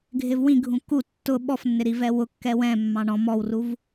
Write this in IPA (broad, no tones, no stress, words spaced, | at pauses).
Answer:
ɡʱɪvwĩɡʱũ ku tːʊ ɓɔfnːɪ ɾivɛwʊkːɛ wɛ̃mːɑ̃ ɳɔ̃ mɔwruv